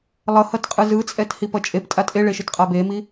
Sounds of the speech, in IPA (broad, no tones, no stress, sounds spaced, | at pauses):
lˠ ʌ h ʌ t qʼ ɯ z ɯ t͡sʼ ɛ t h i p ʌ t͡ʃʼ e p tʼ a tʼ e ɭ e ʃ ɯ t qʼ a b e m i